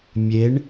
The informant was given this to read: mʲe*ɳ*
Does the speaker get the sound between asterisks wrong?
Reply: no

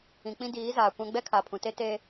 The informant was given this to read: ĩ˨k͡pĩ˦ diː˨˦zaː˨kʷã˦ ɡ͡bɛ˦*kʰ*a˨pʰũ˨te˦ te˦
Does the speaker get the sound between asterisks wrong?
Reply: no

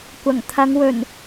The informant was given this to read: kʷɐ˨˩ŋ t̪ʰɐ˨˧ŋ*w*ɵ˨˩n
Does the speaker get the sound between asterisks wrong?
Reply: no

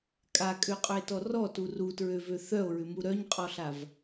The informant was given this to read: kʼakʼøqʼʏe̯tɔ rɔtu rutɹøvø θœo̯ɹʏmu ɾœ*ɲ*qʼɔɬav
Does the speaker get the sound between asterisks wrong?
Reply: no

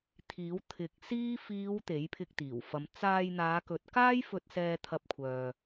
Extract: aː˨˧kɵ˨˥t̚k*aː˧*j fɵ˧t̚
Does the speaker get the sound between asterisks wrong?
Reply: yes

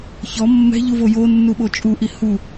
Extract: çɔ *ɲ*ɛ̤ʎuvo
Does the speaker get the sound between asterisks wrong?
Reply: yes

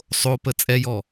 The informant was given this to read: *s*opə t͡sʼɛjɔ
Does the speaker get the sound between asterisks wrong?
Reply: yes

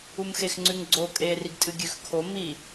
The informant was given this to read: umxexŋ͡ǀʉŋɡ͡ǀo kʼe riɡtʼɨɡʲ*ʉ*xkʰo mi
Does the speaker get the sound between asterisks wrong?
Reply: no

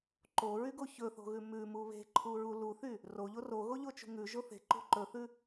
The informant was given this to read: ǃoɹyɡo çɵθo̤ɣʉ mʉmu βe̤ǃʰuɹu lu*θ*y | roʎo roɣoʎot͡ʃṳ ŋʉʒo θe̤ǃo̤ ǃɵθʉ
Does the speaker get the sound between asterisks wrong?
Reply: no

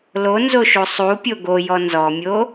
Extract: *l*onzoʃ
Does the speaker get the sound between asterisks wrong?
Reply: no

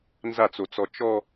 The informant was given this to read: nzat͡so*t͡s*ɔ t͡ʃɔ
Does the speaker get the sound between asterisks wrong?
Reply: no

